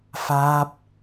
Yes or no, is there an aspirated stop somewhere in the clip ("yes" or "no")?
no